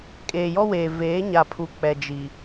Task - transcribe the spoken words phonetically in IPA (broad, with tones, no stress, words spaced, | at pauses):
kʼeː˨jɔ˦weː˨ veː˨˦ɲa˨pʰu˨ k͡pɛ˨d͡ʒi˨